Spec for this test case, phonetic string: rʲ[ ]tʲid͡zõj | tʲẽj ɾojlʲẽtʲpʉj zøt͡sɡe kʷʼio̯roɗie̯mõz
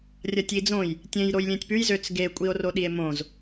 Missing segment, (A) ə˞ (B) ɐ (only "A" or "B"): B